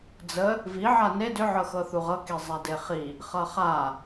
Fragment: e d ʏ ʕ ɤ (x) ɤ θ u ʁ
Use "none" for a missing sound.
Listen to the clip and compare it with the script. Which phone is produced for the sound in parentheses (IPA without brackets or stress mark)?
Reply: x